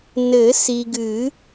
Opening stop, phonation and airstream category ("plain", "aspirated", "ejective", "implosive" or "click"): plain